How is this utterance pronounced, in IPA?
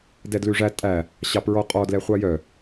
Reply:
d ɛ d l ʉ ʐ æ tʼ æ | ɕ ɑ p ɹ ɔ qʼ ɔ d l ɛ χʷ ɑ j œ

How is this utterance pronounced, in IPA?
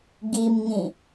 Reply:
ɡ i m ŋ ĩ

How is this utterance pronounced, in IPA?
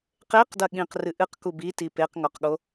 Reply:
q e q d ɐ ɠ ĩ q r ɨ ʔ ɨ q k u b i t i p e q ŋ ɔ q ɠ o

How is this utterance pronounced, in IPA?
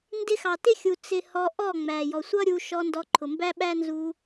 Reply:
n d ɪ˧ x ɑ˨ t ɪ˦ xʲ u˨ t͡s ɪ˧ h ɔ˧ ʔ ɔ˦˨ ŋ͡m æ˨ j ɔ˨ sʷ ʌ˦ ɾʲ u˧ ʃ ɔ˧ n d ɔ˧ ǃʰ ʊ˨ m b æ˦ ɓ æ˦ n z u˧

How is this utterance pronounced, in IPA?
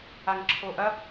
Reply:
a ŋ ǁʰ o ʔ ɐ

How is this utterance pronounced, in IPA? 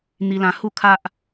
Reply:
n̪ i˧ l ã˧ h u˥˧ kʰ a˦ ʔ

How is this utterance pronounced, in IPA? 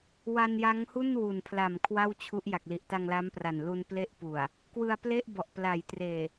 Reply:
w a˧ n j a˦˥ ŋ h u˥˩ n w u˨˩ n pʰ l a˨˩ m kʰ w a˥˩ w t͡ɕʰ u˦˥ ʔ j a˨˩ k̚ l i˨˩ ʔ t a˧ ŋ l a˦˥ m p r a˨˩ n l u˧ n p l e˦˥ ʔ p u˨˩ a̯ | k w ɯ˧ a̯ p l e˥˩ ʔ b ɔ˨˩ ʔ p l a˩˦ j t r eː˨˩

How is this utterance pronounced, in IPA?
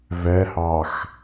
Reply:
v ɛ h ɑ x

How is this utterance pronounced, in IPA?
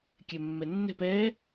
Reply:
kʲ ɛ mː ɛ nː ɛ̤ p ɛ

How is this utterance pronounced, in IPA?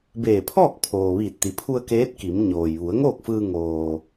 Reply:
b eː˧˩ pʰ ɔː˥˨ k̚ pʰ oː˩ ʋ iː˧˩ t̚ t̪ i˩˧ pʰ u˧ ə̯ k eː˧˥ t̚ k i˩˧ m ɲ oː˩ j ʋ u˩˧ ə̯ ŋ oː˥˨ k̚ f ɯː˧ ŋ oː˩

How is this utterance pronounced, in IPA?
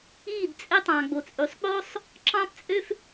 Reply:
i˦˨ d t͡sʼ e˧ tˤ ɑ̃˨ ɡ͡b o˨ t͡sʼ y˨ sˤ k͡p o˦ sˤ | ǁ ɑ̃˦ p t͡sʼ ø˦ f

